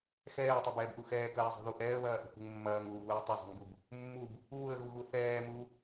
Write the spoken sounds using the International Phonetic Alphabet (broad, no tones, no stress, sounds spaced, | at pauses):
x ɛː tˤ ɛ b ɛː b ʔ u x ɛː k ɐː zˤ ṳ ð u ʔ ɛː ə̯ β ɐː ʔ ṳ k ṳ ŋ mː ɐː ŋ uː v uː tˤ ɐ zˤ ṳ ŋ b u b | mː u b | uː ə̯ ɣ u ɣ u θ ɛː m u